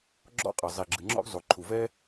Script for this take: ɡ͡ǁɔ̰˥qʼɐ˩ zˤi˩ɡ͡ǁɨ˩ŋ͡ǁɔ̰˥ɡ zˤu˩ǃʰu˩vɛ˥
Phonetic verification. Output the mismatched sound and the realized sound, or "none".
none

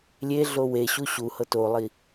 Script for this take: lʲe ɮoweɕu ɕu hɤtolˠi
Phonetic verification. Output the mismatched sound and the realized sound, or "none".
none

